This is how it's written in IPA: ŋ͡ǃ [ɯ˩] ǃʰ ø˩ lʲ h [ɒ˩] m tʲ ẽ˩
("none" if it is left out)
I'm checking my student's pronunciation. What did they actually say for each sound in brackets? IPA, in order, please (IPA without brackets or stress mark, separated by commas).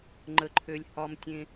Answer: ə˩, ɒ˩